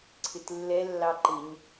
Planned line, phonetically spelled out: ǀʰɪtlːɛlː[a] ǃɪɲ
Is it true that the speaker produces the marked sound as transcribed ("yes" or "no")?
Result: no